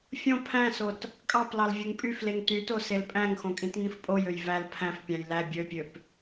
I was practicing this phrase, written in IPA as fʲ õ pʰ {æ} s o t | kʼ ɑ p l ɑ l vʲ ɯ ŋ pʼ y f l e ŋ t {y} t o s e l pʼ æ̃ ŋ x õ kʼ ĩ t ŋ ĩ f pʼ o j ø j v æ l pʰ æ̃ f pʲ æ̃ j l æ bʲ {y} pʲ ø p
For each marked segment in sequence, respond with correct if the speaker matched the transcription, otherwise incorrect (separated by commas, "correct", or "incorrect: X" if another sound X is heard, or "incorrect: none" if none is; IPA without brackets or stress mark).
incorrect: æ̃, correct, incorrect: ø